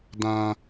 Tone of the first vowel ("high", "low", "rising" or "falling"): high